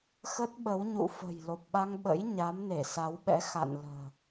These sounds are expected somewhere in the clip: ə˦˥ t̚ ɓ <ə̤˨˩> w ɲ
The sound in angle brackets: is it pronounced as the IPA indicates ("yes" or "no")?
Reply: no